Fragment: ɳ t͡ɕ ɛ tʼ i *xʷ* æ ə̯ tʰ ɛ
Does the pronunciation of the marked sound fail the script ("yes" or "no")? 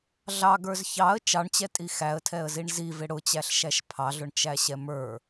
yes